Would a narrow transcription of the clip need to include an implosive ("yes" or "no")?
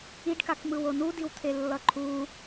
no